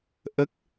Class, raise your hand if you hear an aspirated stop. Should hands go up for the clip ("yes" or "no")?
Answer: no